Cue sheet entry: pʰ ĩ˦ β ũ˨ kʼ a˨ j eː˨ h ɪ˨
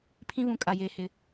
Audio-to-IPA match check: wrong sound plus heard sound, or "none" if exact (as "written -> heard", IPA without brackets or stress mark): none